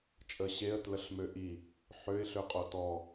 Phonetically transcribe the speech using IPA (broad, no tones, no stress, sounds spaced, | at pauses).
t͡ʃʼ ə ɕ e ə̯ t l ə ɬ m ø ʔ i | ħ ø ɪ̯ ɬ ø qʼ o t ɔ